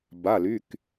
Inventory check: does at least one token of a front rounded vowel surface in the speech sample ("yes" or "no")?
yes